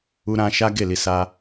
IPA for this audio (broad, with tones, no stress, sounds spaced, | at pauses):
u˧ ɾ ã˧ ʃ a˦ ɡ e˦˨ l i˧ s a˧